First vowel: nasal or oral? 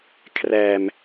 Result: oral